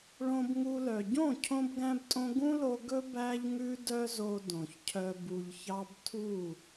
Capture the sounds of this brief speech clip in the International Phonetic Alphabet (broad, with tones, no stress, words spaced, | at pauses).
ɭõ˧bŋu˧lœ˨ ɟõ˦˨cʰõ˧bɡæ̃˧btʼõ˧ ɡũ˦lo˧ ɡɵ˦ bæ˦ʎŋʉ˦dœ˦zo˧ dõ˨çcʰœ˧ bu˨ʎçɑ˧b tʰu˦˨